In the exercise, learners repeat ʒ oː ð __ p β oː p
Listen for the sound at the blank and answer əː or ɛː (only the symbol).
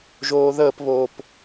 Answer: əː